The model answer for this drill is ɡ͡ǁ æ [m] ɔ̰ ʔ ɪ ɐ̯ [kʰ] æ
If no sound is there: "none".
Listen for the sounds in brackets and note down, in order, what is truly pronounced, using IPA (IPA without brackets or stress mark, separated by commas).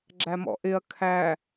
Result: m, kʰ